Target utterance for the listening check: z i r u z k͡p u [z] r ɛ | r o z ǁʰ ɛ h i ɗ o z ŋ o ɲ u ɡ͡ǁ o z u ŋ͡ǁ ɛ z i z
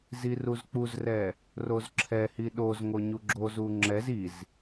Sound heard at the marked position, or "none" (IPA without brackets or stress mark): z